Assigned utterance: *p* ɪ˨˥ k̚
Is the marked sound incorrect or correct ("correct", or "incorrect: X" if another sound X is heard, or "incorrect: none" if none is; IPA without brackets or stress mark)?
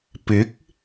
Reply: correct